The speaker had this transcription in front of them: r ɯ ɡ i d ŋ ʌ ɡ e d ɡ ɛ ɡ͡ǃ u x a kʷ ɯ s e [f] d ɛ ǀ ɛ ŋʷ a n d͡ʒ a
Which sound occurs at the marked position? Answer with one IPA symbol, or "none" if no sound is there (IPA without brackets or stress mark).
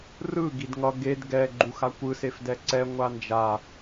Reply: f